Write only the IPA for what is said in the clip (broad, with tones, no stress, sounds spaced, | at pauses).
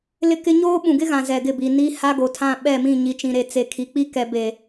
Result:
l ɪ˦ k ɪ˦ ɲ oː˦ ɓ ũ˨ ɡ ɪ˦ ɣ ã˨ z ɛ˨ ɡ ɪ˦˨ b i˨ n i˦ h a˦ ɡ o˨ tʰ ã˦˨ ɓ ɛ˦˨ m ĩ˦˨ ɲ i˨ t͡ʃ ĩ˨ ɾ e˨ t͡s e˨ kʰ i˨ k͡p i˦ k ɛ˨ b e˨